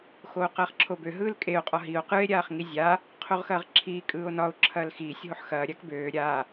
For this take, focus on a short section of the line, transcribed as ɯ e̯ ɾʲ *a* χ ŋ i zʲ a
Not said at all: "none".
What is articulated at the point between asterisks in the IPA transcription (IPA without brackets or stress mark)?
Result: aː